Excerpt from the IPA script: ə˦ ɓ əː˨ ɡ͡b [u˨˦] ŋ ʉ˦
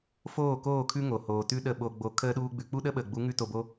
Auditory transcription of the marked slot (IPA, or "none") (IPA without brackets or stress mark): u˨˦